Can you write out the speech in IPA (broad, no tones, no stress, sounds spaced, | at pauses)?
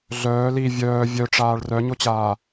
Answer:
ɮ œː l i vʲ œː vʲ œ ʈ͡ʂ aː ɭ r œ ɲ o t͡ɕ aː